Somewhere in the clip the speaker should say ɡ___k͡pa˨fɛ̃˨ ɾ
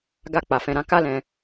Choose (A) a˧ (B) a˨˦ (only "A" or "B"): A